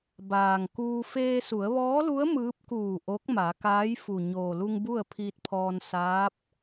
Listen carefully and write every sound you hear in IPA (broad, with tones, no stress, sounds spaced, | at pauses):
b aː˩ ŋ k uː˧ f eː˧ s u˩˧ ə̯ ʋ ɔː˧˥ l u˧˥ ə̯ m ɯː˧˥ p̚ k uː˧˩ ʔ o˧˥ k̚ m a˩˧ k aː˧˥ j f u˩ ɲ oː˩ l u˧ ŋ b u˥˨ ə̯ pʰ iː˧ t̚ pʰ ɔː˧ n s aː˧˥ p̚